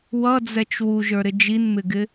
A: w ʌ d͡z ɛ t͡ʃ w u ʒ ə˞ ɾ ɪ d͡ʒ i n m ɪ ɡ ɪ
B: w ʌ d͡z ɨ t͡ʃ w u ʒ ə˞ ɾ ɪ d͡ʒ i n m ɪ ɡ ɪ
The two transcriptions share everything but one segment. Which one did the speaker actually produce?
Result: A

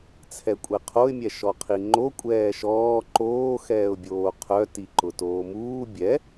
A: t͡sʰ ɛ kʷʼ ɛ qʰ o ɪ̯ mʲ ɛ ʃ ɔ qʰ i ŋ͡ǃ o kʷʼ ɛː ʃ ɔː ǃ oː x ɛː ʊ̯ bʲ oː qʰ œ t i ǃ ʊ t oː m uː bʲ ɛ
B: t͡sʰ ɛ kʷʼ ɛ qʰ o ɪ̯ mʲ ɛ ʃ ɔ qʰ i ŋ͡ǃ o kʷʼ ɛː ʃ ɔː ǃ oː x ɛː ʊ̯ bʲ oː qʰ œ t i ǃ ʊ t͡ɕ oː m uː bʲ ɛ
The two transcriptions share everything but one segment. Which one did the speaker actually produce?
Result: A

